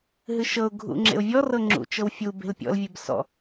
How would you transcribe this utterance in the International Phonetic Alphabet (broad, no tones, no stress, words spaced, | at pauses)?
ɦɨʃɤʊ̯ ɡʱṵŋ͡ǁḛʊ̯vʲɔr ɤŋ͡ǁṵ t͡ʃɤwfʲu be̤lpʲɔ̰l vʲebsɔ̰